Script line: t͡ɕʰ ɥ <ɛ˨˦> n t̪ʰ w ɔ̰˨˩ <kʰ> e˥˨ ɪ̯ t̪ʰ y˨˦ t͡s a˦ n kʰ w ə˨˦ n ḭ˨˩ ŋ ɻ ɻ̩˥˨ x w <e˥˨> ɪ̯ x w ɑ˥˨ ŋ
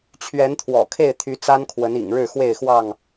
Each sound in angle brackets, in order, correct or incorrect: correct, correct, correct

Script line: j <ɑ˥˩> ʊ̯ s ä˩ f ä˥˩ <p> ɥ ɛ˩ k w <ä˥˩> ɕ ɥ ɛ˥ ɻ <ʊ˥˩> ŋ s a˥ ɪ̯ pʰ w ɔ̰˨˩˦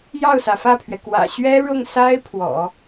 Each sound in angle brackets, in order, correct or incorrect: correct, incorrect, incorrect, correct

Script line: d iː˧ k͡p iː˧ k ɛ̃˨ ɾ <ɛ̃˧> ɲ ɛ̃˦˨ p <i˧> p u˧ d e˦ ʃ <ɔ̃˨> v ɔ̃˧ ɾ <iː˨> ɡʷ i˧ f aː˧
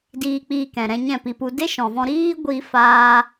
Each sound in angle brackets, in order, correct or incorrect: correct, correct, correct, incorrect

